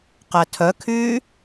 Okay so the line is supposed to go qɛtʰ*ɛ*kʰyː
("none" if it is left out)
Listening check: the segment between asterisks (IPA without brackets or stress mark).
œ